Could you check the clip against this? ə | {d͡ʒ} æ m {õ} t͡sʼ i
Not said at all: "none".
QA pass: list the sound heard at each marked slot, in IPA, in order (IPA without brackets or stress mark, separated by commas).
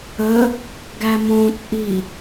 ɡ, õ